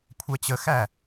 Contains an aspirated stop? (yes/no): yes